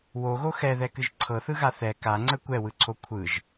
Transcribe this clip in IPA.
w o ɣ o x ɛ ð ɛ k ɨ ʒ ǀʰ ɤ θ ɯ ɣ a θ ɛ k a ŋ͡ǀ ə kʷ ɛ w ɯ ǀʰ o kʷʰ ɯ ʒ

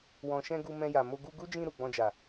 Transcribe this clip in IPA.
w ɔ̃˨ ʃ ɛ̃˧ ɡ u˧ m ɛ̃˧ j a˨ m o˧ ɡ u˧ ɡ u˦ d͡ʒ ĩ˧ ɾ u˨ ɡ͡b ɔ̃˧ d͡ʒ a˨

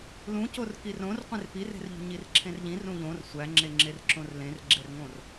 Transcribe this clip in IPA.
l ũ c o r k i r õ r qʷ ẽ r p i r e̤ r ʎ ṳ ɲ i r ǁʰ ẽ r ʎ ĩ r ũ ʎ õ r sʷ æ ŋ͡ǁ e ŋ͡ǁ e r ǁ õ r l ẽ r ɡ͡ǁ e r ŋ õ r

